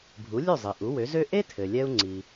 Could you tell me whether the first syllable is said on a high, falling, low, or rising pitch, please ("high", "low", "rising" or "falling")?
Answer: rising